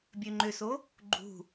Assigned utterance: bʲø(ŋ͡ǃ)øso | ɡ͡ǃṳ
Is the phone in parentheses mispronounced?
no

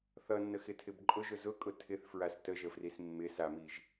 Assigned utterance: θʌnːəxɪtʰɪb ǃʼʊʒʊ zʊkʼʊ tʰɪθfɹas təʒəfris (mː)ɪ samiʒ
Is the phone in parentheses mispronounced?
no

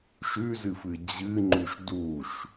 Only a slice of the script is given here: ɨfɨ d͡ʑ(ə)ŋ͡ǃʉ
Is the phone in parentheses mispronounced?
yes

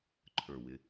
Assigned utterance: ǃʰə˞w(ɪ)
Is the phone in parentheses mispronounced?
no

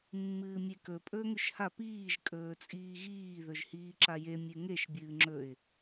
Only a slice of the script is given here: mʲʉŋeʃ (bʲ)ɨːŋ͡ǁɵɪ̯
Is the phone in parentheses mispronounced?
no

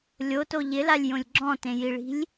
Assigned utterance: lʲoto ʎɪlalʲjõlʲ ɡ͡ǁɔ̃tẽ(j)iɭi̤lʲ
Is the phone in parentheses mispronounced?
no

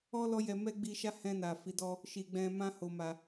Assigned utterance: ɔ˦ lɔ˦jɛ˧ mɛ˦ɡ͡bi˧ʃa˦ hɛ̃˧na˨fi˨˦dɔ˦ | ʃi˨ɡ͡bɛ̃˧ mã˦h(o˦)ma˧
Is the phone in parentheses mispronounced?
yes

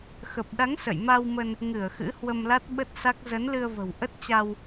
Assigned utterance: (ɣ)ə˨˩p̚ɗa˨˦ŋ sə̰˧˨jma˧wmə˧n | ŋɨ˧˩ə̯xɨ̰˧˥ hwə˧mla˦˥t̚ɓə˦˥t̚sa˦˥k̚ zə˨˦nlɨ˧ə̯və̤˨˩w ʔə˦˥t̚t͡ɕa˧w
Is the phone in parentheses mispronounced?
yes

